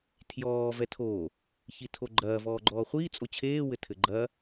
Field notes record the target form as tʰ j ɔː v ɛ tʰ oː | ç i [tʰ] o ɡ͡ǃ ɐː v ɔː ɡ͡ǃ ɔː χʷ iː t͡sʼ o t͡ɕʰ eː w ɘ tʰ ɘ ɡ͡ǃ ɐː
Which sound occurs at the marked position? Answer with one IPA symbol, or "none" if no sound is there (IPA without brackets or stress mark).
tʰ